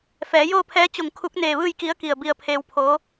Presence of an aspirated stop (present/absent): present